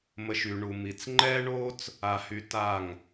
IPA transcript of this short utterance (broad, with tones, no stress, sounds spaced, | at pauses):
m ə˧ ʃ y˨ ɳ u˨ m i˨ t͡s ŋ͡ǃ ɛː˦ ɳ oː˦ t͡s | a˧ h y˧ t a˦˨ ŋ